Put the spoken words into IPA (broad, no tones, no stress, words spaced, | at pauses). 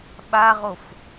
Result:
ɓaʁof